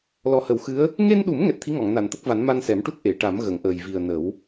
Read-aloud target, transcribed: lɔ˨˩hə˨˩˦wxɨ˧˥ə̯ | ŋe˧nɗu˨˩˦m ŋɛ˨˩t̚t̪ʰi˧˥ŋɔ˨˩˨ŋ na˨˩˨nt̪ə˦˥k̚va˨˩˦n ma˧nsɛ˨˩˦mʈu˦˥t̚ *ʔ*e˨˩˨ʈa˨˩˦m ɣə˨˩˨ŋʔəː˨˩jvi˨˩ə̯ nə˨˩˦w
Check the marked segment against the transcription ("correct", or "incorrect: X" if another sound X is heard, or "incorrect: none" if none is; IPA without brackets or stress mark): correct